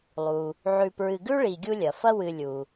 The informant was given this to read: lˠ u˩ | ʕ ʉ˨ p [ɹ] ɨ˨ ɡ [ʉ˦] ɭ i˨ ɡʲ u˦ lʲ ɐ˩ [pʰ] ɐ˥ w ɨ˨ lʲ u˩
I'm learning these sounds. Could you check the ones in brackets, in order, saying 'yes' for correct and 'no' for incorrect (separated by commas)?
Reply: yes, no, no